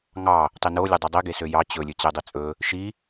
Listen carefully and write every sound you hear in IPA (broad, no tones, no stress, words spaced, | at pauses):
ŋɑ | tˤino lʲodˤʉdˤi ɡesøjɑ t͡ɕɵ lʲɵt͡ɕedˤit͡sʼɵ | ʃi